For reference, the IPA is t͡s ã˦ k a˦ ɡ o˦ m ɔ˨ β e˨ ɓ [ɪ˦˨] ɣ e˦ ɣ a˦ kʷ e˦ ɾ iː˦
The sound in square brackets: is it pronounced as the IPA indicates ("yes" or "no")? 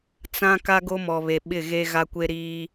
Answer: yes